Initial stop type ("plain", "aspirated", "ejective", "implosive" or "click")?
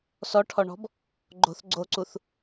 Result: aspirated